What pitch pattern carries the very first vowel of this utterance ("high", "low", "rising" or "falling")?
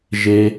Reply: low